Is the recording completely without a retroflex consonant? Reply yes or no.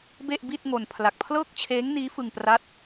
yes